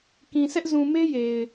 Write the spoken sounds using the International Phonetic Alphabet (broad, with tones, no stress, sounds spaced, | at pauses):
k ĩ˨ s ɛ˦ ʔ z ũ˨ m e˦ j e˨ ɪ̯